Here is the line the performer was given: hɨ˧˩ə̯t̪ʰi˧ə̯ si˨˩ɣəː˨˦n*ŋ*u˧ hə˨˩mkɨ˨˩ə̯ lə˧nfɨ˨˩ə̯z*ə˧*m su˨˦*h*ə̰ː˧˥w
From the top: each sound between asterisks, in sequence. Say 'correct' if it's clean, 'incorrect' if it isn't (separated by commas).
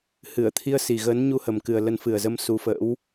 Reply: incorrect, correct, incorrect